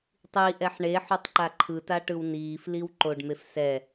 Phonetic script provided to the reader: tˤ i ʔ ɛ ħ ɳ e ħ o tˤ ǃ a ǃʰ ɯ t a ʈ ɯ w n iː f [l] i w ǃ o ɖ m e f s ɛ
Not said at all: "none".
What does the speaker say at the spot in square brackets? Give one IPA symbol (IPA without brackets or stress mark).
l